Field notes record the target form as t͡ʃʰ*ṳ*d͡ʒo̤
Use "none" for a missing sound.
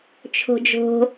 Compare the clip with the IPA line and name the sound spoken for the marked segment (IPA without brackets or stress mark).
o̤